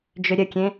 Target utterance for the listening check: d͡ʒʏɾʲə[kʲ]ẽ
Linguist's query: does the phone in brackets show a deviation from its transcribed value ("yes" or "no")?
no